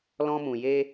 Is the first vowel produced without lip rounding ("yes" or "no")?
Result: no